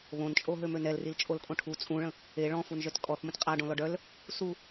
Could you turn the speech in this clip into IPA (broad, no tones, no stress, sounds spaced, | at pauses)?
β õ n t͡ʃʼ o ɦ ø m ø n ɛ l r i l t͡ʃʼ o l kʼ õ ʈʰ u t͡sʼ ũ ɭ ə̃ | e ɭ ɔ̃ f u n ʒ œ t kʼ ɔ θ m ə̃ t qʼ a ɖ õ l ɔ ɖ œ l | s u